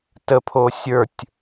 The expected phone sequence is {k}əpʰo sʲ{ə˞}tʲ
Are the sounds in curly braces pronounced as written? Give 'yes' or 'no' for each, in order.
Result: no, yes

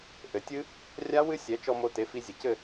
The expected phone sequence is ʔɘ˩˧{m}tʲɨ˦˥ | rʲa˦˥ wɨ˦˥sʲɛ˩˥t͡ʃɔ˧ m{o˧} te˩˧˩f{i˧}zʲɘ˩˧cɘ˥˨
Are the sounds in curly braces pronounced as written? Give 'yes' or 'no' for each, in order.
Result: no, yes, yes

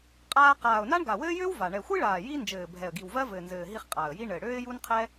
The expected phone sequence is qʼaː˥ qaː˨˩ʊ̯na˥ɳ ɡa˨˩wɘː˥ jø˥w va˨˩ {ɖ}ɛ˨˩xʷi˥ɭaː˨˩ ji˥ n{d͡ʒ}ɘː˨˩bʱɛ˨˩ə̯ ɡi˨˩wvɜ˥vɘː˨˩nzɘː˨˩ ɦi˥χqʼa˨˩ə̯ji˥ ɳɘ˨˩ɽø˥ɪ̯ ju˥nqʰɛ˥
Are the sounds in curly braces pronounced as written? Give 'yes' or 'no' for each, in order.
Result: no, yes

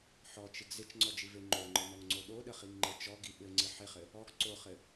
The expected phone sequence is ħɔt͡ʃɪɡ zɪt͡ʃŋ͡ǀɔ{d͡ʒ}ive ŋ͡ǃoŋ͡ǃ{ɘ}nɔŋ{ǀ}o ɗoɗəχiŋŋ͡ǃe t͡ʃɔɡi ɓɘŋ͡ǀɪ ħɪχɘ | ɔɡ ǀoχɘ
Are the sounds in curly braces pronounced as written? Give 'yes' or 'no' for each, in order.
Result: yes, yes, no

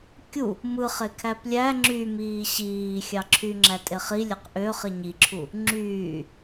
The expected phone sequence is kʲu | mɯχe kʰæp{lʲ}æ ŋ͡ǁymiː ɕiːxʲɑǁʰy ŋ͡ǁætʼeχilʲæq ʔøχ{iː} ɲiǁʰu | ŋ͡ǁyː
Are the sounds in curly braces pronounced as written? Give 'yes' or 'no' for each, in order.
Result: yes, no

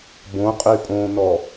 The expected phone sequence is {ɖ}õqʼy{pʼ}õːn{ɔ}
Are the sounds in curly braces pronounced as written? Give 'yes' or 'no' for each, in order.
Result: no, yes, yes

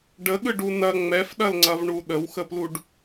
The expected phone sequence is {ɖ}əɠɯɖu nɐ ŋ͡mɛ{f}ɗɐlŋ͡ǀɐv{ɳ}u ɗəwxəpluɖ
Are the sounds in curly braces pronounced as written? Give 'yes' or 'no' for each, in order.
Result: yes, yes, yes

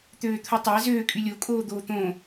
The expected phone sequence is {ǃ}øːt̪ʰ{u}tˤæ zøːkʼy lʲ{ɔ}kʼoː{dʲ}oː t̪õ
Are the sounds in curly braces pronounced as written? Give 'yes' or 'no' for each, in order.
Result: no, yes, no, no

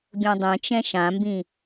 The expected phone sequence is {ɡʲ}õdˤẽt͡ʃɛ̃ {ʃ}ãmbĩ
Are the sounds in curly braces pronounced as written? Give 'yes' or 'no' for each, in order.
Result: yes, yes

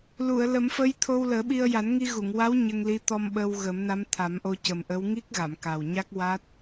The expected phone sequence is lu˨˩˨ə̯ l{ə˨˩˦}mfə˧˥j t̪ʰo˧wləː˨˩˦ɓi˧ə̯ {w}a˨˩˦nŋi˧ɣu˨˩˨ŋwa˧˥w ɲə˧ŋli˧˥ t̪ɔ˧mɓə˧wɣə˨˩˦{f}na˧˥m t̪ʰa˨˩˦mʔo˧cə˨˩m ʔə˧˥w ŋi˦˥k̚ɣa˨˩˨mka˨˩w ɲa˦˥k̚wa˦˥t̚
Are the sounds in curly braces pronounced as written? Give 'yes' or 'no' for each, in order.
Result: yes, no, no

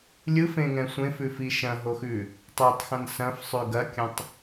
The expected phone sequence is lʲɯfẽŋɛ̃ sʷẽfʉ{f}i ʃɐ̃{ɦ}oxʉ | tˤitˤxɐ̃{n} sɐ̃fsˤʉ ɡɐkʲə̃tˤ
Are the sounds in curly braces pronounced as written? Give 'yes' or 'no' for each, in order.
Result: yes, yes, yes

